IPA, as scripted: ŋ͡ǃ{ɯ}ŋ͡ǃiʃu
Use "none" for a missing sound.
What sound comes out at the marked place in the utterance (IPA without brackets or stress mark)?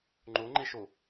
u